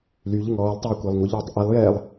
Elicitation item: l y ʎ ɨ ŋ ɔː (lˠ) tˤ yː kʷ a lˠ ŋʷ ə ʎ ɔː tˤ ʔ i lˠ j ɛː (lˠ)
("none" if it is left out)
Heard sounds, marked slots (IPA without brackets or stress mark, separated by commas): lˠ, lˠ